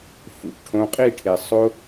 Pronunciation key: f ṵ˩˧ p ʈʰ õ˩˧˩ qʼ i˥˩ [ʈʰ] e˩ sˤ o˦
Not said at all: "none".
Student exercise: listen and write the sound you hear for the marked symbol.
ʈʰ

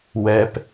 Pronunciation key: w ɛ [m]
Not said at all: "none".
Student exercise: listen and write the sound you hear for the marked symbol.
p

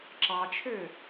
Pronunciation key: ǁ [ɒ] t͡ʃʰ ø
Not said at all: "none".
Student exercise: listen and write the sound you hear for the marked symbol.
ɑ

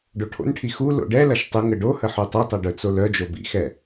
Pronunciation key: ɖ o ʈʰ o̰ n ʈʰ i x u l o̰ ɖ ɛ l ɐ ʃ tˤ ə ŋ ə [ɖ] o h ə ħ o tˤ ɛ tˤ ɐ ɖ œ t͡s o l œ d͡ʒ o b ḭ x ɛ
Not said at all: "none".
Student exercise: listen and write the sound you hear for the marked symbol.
ɖ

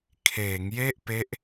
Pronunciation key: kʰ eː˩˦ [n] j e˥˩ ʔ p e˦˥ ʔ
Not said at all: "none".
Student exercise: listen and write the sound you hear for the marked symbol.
ŋ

